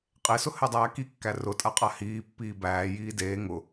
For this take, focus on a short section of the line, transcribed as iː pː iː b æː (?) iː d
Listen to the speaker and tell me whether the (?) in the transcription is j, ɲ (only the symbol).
j